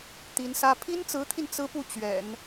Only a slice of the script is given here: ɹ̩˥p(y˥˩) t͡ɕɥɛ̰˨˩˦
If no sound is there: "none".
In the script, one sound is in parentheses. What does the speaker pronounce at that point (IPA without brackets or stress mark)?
u˥˩